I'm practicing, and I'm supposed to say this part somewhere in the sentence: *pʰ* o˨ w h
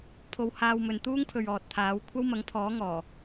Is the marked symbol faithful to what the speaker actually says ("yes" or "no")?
yes